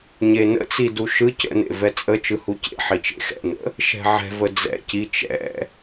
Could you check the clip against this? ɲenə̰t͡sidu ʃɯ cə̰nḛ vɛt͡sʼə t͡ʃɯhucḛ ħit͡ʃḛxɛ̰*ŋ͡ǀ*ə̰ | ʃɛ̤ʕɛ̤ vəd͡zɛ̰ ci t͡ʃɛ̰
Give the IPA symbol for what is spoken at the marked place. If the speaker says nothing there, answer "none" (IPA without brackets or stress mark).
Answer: n